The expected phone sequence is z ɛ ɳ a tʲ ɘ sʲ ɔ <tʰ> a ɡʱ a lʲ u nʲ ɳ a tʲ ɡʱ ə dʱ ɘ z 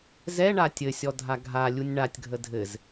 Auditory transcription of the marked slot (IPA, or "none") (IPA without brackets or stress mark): dʱ